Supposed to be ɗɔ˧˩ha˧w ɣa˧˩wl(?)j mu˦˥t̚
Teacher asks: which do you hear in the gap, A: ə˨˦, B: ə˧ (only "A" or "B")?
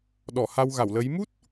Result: A